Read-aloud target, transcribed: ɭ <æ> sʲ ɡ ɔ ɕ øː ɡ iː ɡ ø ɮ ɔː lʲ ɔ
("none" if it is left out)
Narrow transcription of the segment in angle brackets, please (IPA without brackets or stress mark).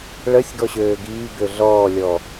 ə